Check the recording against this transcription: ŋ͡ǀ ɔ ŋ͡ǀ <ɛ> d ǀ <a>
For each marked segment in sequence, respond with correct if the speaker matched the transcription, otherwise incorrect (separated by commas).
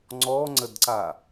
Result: incorrect, correct